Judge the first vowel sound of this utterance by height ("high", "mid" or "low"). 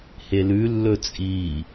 mid